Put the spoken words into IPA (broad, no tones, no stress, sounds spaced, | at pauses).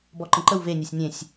b ɔ ǃ ə̃ ǃ ə w v e nʲ e sʲ nʲ ẽ sʲ